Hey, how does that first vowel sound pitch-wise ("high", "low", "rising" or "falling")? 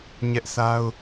high